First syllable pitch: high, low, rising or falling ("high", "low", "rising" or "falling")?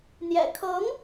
low